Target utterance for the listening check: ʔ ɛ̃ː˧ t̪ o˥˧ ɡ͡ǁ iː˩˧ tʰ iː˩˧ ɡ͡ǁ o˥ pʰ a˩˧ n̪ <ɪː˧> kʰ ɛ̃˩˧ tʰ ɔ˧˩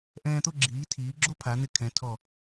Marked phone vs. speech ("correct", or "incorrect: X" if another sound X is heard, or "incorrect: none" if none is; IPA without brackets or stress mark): incorrect: ɪ˧